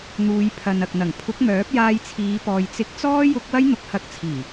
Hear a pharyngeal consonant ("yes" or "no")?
no